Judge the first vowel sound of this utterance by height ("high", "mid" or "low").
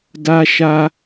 low